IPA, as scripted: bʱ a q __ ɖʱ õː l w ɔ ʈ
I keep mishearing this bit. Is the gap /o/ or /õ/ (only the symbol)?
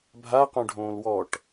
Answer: õ